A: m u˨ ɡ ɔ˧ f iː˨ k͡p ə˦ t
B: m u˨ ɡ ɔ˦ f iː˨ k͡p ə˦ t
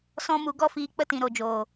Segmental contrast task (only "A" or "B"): A